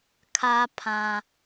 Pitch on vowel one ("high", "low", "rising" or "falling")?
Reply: high